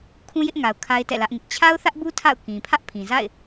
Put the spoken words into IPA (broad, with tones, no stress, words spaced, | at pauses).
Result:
kʰũ˦jɪ˦ʔŋa˨ʊ̯ kʰa˦ɪ̯tɛ̰˦˨lä˦ʔŋɪ˦ʔ t͡ɕʰa˦ʊ̯θä˦ʔbu˦ tʰa̰˦˨ʊ̯ kĩ˨pʰä˦ʔpʰĩ˨za̰˦˨ɪ̯